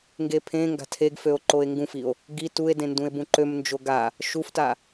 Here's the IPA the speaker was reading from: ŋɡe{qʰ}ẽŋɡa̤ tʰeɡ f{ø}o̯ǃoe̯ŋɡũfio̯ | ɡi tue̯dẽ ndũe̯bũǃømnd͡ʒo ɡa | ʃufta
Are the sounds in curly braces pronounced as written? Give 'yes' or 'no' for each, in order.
no, yes

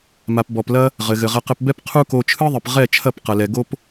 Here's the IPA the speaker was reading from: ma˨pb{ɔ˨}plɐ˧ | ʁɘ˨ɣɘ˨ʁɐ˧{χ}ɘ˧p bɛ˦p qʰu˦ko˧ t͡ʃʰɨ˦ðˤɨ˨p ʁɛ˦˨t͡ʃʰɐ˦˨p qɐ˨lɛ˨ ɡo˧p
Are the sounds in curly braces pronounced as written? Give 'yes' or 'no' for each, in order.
yes, no

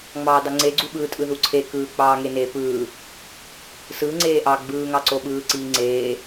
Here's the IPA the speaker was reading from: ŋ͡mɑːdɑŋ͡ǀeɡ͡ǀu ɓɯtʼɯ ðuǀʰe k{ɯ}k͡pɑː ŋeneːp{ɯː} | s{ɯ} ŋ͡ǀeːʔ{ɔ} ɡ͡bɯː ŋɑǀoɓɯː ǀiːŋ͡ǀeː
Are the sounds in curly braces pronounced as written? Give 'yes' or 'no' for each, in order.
no, yes, no, no

